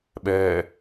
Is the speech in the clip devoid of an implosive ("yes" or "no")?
no